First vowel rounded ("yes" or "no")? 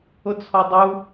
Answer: yes